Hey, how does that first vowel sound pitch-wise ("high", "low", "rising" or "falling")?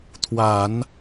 low